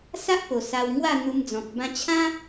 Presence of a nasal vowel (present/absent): present